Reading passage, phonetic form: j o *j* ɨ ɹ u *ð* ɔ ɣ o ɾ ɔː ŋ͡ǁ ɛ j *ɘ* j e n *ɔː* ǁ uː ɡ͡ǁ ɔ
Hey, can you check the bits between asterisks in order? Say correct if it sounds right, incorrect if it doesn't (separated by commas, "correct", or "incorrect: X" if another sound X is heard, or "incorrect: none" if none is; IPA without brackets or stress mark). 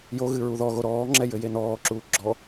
incorrect: ɣ, correct, correct, correct